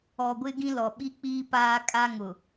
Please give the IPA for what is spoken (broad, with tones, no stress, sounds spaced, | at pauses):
ɔ˨ ɡʷ ɪ˦ ɡ ĩ˦ l ɔ˨ ɓ i˦ k͡p iː˦ p aː˦ kʼ a˦ ŋ ʊ˨